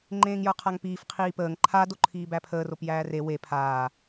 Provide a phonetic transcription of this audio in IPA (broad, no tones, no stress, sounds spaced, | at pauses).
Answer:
ŋ͡ǃ ẽː ŋ j ə˞ qʰ a ŋ p iː f qʰ iː p əː ŋ ǃʰ a d o ǃʰ iː b æ pʰ əː r o p j æː r e w e pʰ aː